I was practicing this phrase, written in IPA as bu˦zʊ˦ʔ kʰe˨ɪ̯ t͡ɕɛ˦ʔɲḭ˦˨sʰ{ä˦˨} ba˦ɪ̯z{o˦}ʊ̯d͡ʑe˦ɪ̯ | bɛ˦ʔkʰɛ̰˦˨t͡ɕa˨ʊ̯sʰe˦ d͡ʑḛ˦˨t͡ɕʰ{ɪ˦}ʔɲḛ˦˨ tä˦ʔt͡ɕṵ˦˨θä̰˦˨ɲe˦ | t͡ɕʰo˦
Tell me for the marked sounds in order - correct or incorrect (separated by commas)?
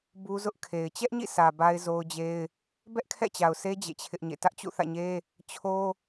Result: incorrect, correct, correct